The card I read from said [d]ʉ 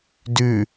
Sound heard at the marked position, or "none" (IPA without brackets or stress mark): d